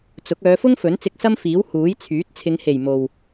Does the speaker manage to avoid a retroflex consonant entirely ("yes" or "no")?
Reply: yes